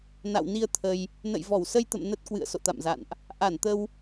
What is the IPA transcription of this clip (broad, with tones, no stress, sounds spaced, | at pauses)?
n a̰˧˨ w n i˧ ə̯ t̪ʰ ə˧ j | n ə̰˧˨ j v ɔ˧˩ w s ə˧ j t̪ ə̰˧˨ m n ə˦˥ t̚ k w ɨ̰˧˨ ə̯ s o̰˧˨ t̪ a̰˧˨ m z a̰˧˨ n ʔ | ʔ a˧˩ n t̪ ə˧ w